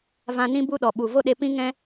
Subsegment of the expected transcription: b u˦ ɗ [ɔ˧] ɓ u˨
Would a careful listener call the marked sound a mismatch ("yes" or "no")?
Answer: yes